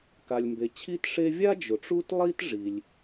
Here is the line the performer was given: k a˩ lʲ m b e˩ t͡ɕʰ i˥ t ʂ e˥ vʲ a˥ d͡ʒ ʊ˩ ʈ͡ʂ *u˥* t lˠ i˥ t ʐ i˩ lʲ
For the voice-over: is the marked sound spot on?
yes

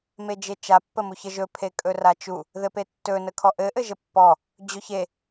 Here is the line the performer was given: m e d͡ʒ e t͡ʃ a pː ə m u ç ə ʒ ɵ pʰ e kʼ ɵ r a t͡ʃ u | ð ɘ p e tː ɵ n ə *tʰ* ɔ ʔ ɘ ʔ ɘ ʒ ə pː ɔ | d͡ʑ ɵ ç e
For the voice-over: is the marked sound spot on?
no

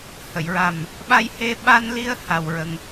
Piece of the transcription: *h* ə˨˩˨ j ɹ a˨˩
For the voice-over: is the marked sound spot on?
yes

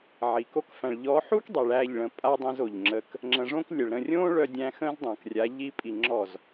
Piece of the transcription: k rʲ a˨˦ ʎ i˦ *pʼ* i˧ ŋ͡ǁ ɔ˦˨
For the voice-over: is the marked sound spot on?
yes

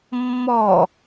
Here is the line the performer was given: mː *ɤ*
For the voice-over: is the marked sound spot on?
no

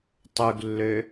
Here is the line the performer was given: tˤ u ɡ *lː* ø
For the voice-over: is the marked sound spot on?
yes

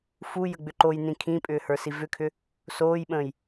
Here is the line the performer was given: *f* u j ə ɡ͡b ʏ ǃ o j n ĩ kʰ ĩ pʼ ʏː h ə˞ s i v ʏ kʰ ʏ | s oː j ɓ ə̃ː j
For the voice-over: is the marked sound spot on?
yes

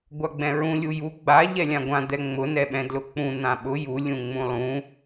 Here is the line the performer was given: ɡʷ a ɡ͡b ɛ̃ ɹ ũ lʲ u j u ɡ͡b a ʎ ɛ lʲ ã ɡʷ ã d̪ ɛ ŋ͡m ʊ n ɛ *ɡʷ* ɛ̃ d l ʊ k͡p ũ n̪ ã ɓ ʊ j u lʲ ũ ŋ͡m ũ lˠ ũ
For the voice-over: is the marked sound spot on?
no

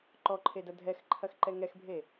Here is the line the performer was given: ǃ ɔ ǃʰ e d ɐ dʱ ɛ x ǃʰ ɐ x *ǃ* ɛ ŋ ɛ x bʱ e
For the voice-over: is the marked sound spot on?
yes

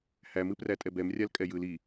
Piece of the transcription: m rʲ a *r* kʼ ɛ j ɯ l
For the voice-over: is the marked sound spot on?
no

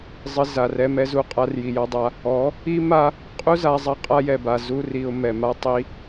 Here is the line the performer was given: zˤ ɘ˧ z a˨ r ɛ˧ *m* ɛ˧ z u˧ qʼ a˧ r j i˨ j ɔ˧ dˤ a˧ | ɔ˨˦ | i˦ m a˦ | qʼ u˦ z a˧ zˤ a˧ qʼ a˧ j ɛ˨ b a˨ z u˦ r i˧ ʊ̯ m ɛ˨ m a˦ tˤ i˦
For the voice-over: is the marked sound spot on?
yes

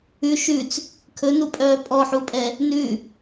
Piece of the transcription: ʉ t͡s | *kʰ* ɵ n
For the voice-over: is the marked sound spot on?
yes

